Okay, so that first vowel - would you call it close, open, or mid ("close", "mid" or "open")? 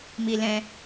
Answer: close